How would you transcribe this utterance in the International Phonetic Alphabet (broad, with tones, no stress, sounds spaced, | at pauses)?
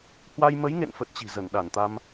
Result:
h w a˧ j m ə˨˦ j ŋ ḛ˧˨ n f ə˦˥ t̚ t͡ɕ i̤˨˩ z ə˧˩ n ɗ a˧˩ n t̪ a˧ m